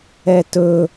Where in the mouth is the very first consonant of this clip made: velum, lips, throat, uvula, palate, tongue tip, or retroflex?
tongue tip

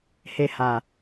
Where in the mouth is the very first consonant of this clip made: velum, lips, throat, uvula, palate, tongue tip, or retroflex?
throat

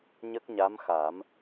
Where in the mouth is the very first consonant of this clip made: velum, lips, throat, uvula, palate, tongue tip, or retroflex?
palate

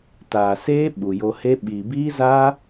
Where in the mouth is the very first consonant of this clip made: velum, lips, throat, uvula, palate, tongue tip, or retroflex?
tongue tip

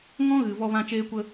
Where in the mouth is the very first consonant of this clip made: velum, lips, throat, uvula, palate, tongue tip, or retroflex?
velum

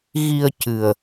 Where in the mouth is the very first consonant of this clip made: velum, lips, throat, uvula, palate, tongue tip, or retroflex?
velum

